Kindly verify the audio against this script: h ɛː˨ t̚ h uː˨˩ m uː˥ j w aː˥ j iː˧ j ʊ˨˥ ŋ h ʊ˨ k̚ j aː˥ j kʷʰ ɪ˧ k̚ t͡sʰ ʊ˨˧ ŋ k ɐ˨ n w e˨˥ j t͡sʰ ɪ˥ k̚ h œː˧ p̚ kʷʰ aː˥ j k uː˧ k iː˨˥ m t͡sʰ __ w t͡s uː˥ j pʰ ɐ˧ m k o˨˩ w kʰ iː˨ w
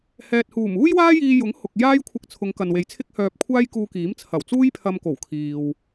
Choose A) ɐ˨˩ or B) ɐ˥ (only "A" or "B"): A